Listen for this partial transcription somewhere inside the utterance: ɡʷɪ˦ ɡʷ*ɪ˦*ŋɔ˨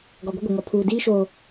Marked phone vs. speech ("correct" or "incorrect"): incorrect